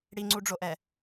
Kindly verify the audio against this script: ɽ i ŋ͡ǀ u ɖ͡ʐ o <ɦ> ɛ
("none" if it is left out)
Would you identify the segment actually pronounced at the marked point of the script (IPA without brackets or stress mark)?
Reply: ʔ